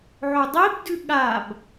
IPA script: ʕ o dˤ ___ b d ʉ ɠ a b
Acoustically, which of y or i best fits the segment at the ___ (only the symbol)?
i